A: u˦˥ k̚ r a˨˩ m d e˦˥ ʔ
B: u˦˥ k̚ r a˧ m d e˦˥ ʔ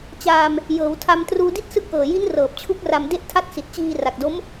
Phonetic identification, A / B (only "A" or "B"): B